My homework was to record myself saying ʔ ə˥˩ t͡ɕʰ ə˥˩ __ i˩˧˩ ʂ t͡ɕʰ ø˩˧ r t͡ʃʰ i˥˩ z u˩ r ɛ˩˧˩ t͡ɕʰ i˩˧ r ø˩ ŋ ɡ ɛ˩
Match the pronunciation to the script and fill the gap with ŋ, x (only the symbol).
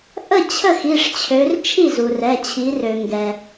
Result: x